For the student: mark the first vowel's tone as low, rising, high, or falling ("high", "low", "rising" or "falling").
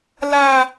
high